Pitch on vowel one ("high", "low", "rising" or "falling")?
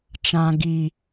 high